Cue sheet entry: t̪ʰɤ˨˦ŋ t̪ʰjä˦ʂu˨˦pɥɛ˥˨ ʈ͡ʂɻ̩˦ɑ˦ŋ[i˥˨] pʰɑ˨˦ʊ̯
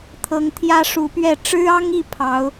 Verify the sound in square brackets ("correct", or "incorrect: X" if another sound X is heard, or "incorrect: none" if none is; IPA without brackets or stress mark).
correct